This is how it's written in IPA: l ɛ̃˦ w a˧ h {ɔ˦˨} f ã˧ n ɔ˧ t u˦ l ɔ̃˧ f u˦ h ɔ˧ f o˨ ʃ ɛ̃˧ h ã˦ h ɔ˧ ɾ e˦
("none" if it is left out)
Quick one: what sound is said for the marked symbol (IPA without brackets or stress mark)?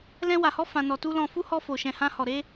ɔ˦